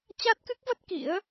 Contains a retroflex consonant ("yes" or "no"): no